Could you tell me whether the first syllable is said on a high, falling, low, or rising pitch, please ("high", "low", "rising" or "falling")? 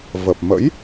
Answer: low